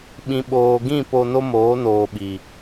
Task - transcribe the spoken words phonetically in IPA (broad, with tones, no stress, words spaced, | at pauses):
ɓĩ˨ɓoː˨ɡĩ˦˨ po˧no˦moː˨˦ noː˨ɓi˨